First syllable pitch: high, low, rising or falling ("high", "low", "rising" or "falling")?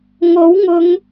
rising